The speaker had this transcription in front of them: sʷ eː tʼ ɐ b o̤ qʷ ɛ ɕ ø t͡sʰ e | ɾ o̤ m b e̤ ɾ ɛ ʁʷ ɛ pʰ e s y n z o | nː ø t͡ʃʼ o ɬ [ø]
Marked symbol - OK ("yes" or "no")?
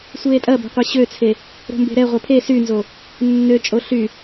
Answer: no